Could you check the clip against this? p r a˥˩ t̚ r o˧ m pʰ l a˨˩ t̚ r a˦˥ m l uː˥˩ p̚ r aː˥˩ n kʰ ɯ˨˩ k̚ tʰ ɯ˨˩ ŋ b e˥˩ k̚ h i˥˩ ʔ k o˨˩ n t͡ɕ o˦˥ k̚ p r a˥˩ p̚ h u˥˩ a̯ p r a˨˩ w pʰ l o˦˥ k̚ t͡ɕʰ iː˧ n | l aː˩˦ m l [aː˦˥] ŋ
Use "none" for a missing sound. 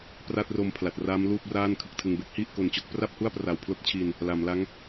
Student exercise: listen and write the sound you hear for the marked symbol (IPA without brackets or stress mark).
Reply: a˦˥